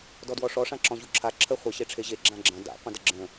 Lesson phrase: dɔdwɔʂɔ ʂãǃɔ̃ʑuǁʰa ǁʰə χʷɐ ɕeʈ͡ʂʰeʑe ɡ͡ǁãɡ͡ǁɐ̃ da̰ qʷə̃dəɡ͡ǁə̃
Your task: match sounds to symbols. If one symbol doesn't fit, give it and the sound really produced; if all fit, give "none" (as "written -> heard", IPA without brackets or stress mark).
ǃ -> ǁ